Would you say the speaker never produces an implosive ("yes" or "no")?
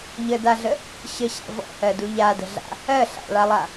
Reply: yes